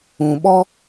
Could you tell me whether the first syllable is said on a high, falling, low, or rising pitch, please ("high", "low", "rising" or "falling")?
low